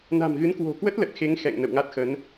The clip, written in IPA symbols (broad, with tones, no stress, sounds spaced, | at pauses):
n a̤˨˩ m ɣ ɨ˨˦ n k w o̤˨˩ k w ə˦˥ t̚ l ə˨˩ t̚ x e˨˦ ŋ x ɛ̰˧˨ ŋ n ə̰˧˨ w ŋ a˦˥ t̚ x ə˨˦ n